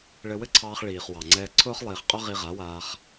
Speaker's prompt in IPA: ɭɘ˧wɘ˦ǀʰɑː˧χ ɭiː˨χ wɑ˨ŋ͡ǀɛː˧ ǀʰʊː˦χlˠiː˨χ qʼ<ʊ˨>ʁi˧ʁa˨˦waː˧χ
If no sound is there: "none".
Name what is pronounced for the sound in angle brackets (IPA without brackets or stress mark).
ʊ˦